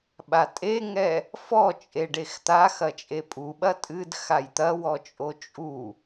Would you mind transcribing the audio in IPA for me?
ɓ a tʼ e ŋ ɛ | f ɔ t͡ʃʼ e ɖ e x t̪ a x ɐ t͡ʃʼ e pʼ u ɓ ɐ tʼ ɨ d x a j t̪ ɐ w ɔ t͡ʃʼ o t͡ʃʼ u

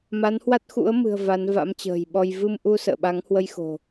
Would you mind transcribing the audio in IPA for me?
m a˨˦ n h w a˦˥ t̚ x ṵ˧˥ ə̯ m ɨ̤˨˩ ə̯ v a˨˦ n v a̰˧˥ m t͡ɕ ə̤ː˨˩ j ɓ ɔ˧ j v ɨ˧ m ʔ u˧ s ə̰ː˧˨ ɓ a˨˦ ŋ h w ə˧ j x o̤˨˩

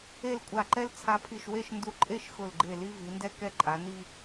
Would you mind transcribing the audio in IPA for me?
e˥˧ l kʷʼ a˧˩ ǃ ɛ˥ l t͡sʰ a˧ pʰ i˧˩ ʃ w e˥˧ ʃ n d u˧˩ ǃʼ e˥˧ ʃ x ʊ˧˩ l ɡ͡ǃ e˧˩ l i˧ v i˩˧ n d ɛ˥ k ɛ˧ ǃʼ a˩˧ n i˥˧

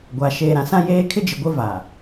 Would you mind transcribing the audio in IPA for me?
ɡʷ a˨ ʃ eː˨ ɾ ã˨ s ã˦ j eː˦ kʰ ɪ˦ d͡ʒ ɪ˨ ɡʷ ɪ˦ v a˨

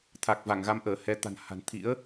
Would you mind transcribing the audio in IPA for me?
t̪ʰ a˨˩ k̚ v a˧˩ ŋ ɣ a˨˦ m ʔ əː˧˩ h ɛ˨˦ t̪ a̤˨˩ n h a̤˨˩ n t̪ʰ ḭ˧˥ ə̯

